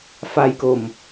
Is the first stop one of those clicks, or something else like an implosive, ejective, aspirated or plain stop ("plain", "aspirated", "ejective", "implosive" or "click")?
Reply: plain